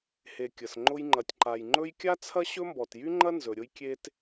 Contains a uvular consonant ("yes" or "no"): no